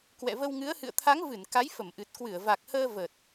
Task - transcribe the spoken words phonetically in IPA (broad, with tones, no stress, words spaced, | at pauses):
kwɛ̰˧˨və˧wŋɨ˨˦ə̯ hɨ̰˧˨ə̯t̪ʰa˨˦ŋvɨ˧˩n ka˨˦jfə˧˩mʔɨ˨˩t̚ kwɨ˧˩ə̯va˨˩k̚həː˧ və˨˩t̚